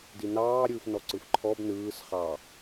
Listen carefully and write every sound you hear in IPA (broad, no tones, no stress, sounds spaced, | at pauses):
d i n ɑː ɾʲ ɯː f n ɔ ǀ ɯ f ǃʰ ɔ b n ɯː s χ ɑ